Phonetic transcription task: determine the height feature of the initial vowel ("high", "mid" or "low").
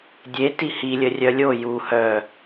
mid